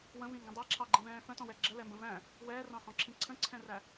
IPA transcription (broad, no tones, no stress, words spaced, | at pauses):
wə̃vĩŋɡə̃ dˤæǁʰɑɡ͡ǃĩvɛ̃ː fə̃tɔ̃wɛ ɡ͡ǁəlɛmbə̃ væ̃ | wɛːrɑ̃hɔ̃ǁʰĩ ǀʰə̃ǀʰɛ̃ræ